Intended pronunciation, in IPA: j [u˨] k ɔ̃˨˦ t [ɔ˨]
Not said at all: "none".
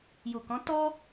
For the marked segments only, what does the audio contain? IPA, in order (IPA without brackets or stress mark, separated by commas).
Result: u˨, ɔ˦